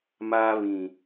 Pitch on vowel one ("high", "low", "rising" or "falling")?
high